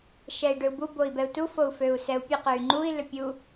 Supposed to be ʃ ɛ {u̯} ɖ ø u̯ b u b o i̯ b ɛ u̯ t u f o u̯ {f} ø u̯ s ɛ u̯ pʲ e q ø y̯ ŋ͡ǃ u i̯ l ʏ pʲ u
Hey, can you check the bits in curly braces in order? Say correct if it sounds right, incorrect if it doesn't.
incorrect, correct

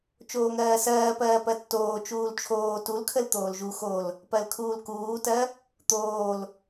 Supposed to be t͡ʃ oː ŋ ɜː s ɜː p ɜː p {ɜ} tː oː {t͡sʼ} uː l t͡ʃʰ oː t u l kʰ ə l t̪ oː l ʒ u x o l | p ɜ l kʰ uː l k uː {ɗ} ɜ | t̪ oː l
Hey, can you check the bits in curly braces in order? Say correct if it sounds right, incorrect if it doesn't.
correct, incorrect, incorrect

